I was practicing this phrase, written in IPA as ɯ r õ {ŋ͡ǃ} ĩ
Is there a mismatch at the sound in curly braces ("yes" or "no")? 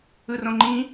no